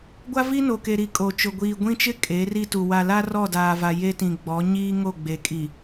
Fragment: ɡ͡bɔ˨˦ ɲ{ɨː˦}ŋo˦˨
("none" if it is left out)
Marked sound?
iː˦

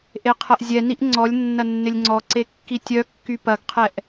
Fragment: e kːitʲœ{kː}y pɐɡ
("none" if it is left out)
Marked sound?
kː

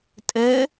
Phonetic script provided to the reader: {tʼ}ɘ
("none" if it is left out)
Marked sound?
tʼ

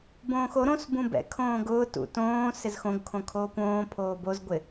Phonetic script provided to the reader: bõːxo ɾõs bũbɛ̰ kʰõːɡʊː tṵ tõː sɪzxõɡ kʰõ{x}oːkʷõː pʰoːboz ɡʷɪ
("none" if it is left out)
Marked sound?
kʰ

